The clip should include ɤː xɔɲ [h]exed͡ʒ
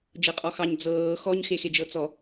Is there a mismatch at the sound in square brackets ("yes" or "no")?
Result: yes